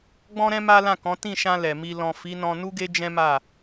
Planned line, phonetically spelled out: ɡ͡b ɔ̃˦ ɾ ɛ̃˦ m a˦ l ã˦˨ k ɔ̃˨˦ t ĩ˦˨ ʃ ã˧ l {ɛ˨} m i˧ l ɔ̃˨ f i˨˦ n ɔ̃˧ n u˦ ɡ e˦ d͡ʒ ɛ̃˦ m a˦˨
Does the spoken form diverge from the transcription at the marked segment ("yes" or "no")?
no